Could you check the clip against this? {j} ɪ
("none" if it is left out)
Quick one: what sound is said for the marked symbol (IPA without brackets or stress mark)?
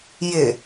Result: j